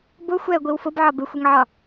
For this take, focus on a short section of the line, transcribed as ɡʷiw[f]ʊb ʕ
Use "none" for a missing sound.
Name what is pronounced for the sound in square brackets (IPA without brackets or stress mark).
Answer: f